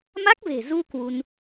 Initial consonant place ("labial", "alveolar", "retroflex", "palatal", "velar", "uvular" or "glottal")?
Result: labial